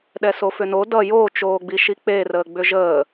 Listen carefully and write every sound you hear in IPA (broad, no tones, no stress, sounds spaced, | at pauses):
ɗ ɛ s o f ʏ n o d ʌ j o t͡ʃ oː ɡ͡b i ʃ i k͡p e r əː ɡ͡b ʏ ʒ əː